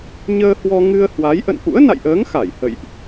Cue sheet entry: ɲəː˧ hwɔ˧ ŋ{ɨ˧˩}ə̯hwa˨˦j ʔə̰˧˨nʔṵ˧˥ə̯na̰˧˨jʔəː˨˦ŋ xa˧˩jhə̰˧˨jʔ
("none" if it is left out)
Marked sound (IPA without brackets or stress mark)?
ɨ˧